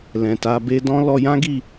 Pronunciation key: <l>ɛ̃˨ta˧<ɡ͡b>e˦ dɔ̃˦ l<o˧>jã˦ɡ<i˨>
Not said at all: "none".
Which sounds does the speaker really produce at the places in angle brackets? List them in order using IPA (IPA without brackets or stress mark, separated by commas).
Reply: l, b, ɔ˧, i˦˨